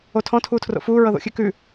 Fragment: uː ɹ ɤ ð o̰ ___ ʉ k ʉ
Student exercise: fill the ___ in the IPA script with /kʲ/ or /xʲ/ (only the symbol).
xʲ